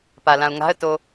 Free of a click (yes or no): yes